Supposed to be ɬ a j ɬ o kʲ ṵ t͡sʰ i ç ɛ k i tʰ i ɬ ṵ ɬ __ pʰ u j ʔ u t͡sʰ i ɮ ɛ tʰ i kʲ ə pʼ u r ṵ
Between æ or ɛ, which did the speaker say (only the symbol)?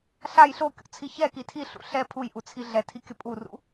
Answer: ɛ